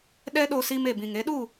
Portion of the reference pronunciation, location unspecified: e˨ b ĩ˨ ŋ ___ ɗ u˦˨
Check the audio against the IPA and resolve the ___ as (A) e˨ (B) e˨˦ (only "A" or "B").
B